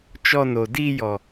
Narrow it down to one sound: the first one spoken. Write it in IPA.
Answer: t͡ʃ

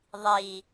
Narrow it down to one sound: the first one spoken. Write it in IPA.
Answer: ðˤ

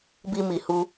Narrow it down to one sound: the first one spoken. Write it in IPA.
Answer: b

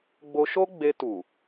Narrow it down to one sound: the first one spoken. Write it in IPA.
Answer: ɡ͡b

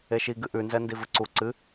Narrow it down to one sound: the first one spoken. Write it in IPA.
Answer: e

